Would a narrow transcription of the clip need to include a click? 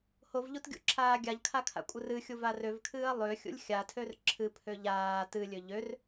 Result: yes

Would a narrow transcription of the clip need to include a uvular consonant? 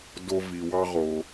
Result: yes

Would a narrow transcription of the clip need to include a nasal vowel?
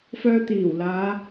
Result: no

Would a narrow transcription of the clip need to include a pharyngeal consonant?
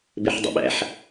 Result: yes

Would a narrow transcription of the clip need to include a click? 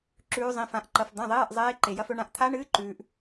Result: yes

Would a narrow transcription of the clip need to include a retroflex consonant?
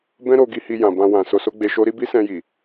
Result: no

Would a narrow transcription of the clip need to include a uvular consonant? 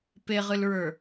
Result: yes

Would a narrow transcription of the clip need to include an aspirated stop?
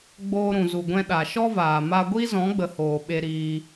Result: no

